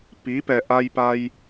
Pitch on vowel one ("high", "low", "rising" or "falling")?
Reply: rising